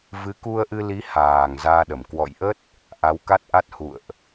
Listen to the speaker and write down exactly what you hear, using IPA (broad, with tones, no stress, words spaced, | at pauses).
vɨ˨˦ku˧ə̯ʔɨ˧li˨˦ haː˨˩ŋ zaː˧ɗə˧˩m kwɔ̰˧˨jʔə˦˥t̚ | ʔa˨˦wka˦˥t̚ʔa˦˥t̚ hṵ˧˨ə̯ʔ